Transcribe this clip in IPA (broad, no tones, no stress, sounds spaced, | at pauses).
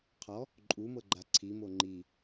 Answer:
qʰ ɔ | ǃʼ u m ɤ ɡ͡ǃ a ǀʰ i m o ŋ͡ǃ i